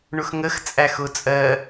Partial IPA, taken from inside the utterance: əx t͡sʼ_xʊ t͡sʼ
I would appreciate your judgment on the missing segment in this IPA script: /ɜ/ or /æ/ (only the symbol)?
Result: æ